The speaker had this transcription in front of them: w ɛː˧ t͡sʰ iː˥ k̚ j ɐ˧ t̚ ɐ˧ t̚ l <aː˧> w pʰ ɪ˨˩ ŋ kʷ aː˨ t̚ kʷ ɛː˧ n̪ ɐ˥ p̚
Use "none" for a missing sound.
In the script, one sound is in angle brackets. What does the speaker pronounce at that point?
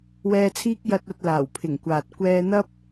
aː˨˩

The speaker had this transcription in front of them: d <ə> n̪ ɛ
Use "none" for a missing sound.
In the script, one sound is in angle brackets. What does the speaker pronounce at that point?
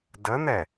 ə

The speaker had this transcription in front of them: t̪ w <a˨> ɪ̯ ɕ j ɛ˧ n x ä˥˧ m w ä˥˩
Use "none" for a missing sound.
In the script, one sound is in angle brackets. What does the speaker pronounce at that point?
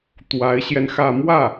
a˧˥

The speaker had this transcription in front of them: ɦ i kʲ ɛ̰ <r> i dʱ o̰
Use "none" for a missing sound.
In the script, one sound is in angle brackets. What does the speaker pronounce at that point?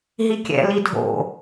l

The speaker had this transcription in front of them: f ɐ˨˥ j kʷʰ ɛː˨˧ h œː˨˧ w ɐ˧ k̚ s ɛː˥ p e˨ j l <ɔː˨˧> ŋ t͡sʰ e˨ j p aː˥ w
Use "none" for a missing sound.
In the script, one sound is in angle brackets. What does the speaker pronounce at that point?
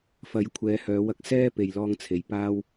ɔː˧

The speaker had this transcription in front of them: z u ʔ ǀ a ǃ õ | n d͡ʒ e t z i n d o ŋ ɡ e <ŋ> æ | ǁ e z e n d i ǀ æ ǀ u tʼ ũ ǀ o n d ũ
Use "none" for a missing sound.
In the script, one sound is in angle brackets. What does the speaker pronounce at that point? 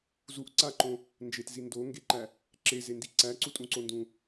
ǃ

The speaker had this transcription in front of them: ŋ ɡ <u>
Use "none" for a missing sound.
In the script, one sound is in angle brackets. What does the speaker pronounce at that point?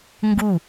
u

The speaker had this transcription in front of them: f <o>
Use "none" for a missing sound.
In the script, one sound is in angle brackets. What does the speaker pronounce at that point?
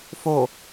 o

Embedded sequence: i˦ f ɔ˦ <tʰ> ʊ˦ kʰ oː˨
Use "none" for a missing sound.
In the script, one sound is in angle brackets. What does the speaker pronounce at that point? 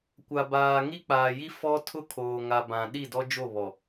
tʰ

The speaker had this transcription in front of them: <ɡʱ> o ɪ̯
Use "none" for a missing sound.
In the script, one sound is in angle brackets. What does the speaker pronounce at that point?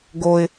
ɡ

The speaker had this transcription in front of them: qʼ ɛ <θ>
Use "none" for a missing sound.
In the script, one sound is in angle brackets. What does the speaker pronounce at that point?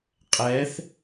θ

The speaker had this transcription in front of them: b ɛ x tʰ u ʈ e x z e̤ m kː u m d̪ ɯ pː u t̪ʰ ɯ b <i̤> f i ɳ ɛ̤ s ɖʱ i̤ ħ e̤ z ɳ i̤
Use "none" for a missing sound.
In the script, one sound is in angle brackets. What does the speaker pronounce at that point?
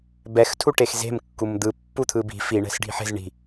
i̤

